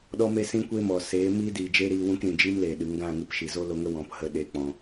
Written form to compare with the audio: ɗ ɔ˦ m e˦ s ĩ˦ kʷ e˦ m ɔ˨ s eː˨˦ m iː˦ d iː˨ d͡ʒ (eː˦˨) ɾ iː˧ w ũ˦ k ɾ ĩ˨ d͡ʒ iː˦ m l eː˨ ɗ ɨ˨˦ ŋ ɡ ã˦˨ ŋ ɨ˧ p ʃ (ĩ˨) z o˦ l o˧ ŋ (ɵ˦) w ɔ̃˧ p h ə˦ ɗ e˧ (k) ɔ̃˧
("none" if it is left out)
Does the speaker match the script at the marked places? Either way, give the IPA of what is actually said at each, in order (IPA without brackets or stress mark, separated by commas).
eː˦, i˨, ə˦, k͡p